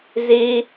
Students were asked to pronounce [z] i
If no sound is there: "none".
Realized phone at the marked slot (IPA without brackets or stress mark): z